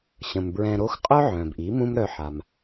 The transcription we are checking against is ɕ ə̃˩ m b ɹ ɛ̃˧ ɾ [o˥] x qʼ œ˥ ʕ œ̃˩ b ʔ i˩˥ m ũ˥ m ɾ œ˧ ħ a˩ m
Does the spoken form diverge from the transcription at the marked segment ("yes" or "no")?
no